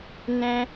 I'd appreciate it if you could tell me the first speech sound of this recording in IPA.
n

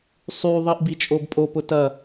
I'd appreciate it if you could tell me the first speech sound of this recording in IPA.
sˤ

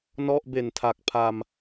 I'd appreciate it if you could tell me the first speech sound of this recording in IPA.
n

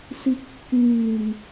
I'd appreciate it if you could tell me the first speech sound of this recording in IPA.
s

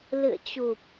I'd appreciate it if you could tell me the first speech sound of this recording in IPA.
l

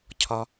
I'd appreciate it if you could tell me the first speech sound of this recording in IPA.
cʰ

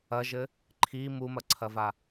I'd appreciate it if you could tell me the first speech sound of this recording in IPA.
ɐ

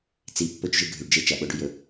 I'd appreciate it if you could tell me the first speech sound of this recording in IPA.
t͡s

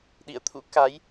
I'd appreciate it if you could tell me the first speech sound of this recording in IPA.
ɗ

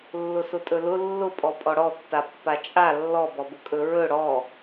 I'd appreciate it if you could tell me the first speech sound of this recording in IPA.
lː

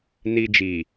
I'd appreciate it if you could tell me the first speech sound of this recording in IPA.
n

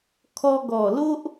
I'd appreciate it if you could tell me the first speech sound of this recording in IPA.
kʰ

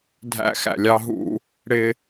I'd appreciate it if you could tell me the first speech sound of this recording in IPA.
dʱ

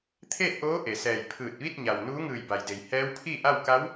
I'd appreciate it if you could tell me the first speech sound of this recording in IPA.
t̪ʰ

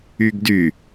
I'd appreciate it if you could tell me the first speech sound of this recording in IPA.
y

